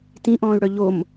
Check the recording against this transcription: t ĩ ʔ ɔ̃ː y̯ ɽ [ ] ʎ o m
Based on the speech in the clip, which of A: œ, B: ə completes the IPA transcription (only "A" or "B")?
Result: A